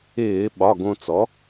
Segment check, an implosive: present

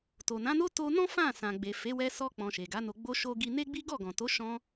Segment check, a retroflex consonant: absent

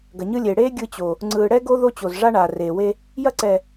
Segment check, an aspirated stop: absent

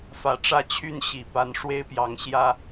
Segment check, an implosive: absent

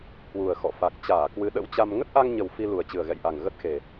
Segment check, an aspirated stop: absent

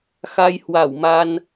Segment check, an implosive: absent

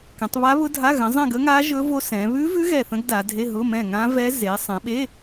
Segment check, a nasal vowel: present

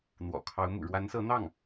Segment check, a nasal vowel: absent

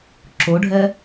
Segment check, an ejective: absent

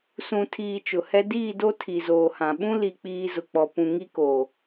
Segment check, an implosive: present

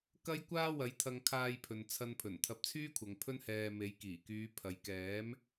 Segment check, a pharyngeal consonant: absent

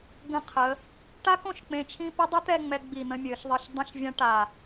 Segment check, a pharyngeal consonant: absent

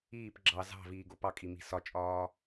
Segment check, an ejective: present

